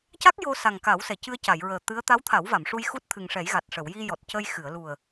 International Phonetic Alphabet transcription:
ca˦˥k̚ jo˧sa˨˩ŋ ka˨˩˦wsɛ˨˩˨cɨ˧ə̯ ca˨˩˨jɹəː˨˩ t̪ɨ˧˥ə̯ t̪a˧˥wt̪ʰa˨˩˦wva˨˩˨m ʂu˧jxu˦˥t̚t̪ʰɨ˨˩ŋʂɛ˨˩˦j ɣa˨˩t̚ ʂə˨˩˨wji˧ jɔ˨˩t̚cə˧j xɨ˨˩˨ə̯lu˨˩ə̯

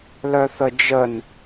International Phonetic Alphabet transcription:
lœθəd͡ʒən

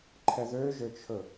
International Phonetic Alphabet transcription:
ǃʰɛðøʒøt͡ʃʰɵ

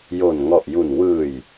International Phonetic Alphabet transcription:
jo˨˩nŋɔ˨˩ʔju˨˩n wɯː˨˩j

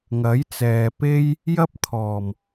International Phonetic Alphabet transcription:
ŋɐ˨˥j t͡sɛː˨pe˥j | jɐ˥p̚t̪ʰɔː˨˩m

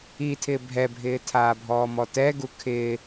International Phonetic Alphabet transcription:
itʰɪː bʱɛbʱɪː tʰaːbʱɔːmɔtɛ ɡukʰɪː

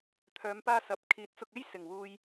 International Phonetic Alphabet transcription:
t̪ʰœː˨˧mpaː˧ sɐ˨p̚ kʰiː˨˥t̚t͡sʊ˧k̚e˥j sɪ˨˩ŋwuː˨j

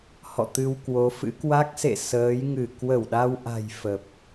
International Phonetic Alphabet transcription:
hɔ̰˧˨t̪ɨ˧wkwo˨˦fɨ̰˧˥ kwa˦˥k̚sḛ˧˨ səː˨˦jŋɨ˧˩ kwə˧˩wɗa˧wʔa̤˨˩j fə˨˩p̚

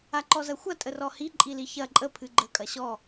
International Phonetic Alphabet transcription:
aǃɔzɐxʷɐ tʼərɔhi ǃʼiliçɐ ǃʼə pʰɨɡ͡ǃə kʼɐɕɔ

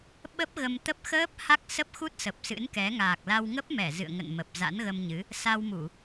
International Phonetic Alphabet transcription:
ɓə˦˥p̚ ɣə˧m t̪ə˦˥p̚ xəː˦˥p̚ ha˦˥k̚sə˦˥p̚xu˦˥t̚ sə˨˩p̚sɨ̰˧˥nkɛ˨˦ ŋaː˨˩k̚la˧w ŋə˦˥p̚mɛ˧˩ zɨ̰˧˨ə̯ŋə̰˧˨nmə˨˩p̚ za̰˧˥nɣə˧mɲɨ˨˦ | sa˧wmu˧˩˨

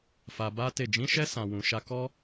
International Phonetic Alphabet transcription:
fa˧ba˦te˦˨ d͡ʒĩ˨˦ʃɛ˧sã˨wũ˨ ʃa˧ kɔ˦

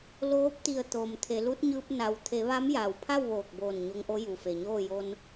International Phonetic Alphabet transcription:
loː˧˥p̚t̪i˧˩ə̯ t̪oː˩mt̪ʰe˩˧ lu˧˥t̚ɲɯː˧p̚ na˩wt̪ʰe˩˧ ʋa˧˥mjaː˩wpʰa˥˨w ʋoː˧˩k̚boː˧˩n ɲo˧ŋʔo˧˥ ju˩fe˩ɲoː˥˨ jo˧n

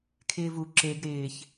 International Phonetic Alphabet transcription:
kʰɪːvu ǁeɡ ɾɪːç

